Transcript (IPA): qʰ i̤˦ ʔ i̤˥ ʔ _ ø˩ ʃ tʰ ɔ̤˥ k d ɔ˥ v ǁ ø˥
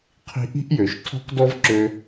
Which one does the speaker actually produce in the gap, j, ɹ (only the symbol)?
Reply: j